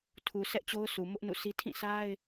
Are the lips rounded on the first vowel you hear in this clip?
yes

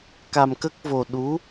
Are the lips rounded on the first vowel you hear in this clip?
no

